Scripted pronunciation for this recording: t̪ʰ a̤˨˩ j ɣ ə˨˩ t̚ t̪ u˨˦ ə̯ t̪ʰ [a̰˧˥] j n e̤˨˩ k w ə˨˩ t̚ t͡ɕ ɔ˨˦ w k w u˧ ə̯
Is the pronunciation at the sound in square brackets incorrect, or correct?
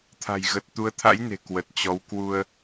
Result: correct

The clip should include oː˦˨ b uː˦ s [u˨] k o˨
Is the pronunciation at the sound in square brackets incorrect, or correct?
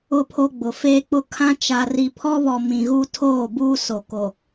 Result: incorrect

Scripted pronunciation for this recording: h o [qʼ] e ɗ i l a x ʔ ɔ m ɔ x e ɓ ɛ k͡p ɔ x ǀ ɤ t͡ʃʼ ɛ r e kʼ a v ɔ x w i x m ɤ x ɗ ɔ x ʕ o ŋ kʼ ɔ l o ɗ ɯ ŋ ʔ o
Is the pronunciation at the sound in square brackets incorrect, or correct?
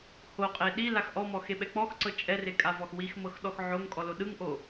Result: correct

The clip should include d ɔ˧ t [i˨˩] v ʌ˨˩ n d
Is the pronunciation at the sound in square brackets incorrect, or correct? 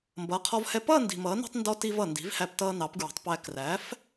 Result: incorrect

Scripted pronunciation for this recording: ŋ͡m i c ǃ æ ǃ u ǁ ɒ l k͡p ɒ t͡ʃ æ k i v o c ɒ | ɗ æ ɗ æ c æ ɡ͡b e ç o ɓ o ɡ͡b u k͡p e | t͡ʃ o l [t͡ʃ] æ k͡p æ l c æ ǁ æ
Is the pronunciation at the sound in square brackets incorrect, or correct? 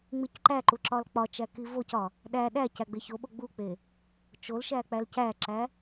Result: incorrect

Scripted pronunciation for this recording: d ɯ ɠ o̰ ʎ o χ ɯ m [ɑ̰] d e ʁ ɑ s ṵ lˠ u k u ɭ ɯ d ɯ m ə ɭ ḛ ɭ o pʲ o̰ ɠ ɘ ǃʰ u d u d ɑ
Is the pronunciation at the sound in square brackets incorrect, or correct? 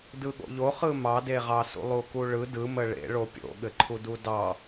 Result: incorrect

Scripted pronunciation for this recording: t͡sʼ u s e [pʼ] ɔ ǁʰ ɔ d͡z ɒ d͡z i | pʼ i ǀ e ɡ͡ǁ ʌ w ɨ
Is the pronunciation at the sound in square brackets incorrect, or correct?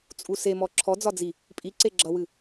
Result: incorrect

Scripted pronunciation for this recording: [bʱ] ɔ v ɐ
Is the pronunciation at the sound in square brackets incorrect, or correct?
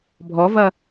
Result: correct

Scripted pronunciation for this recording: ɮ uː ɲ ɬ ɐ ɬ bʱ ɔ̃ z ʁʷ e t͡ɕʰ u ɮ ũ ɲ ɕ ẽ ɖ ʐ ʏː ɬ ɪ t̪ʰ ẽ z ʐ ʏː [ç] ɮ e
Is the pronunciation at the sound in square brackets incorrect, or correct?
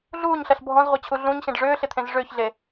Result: correct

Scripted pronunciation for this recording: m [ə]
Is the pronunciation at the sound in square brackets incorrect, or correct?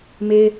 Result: incorrect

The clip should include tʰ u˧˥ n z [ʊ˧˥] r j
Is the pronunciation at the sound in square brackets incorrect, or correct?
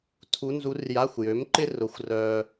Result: incorrect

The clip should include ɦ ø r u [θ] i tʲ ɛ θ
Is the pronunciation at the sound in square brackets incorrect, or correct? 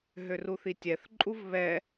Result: correct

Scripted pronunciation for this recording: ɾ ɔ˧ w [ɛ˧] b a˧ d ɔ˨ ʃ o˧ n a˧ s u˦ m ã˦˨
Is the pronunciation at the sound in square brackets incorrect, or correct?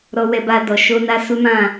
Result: correct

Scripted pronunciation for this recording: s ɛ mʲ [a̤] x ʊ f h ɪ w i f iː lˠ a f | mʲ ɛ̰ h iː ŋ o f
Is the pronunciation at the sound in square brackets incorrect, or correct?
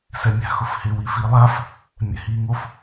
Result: correct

